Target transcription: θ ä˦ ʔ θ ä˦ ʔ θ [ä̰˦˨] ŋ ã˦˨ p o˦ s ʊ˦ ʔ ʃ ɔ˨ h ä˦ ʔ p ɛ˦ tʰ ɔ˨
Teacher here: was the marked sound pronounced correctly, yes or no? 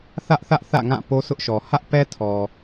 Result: yes